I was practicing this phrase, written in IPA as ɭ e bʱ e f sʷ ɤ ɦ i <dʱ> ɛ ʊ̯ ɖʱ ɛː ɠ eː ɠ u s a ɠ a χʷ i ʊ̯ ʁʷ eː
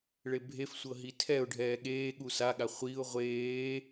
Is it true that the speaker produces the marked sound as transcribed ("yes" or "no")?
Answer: no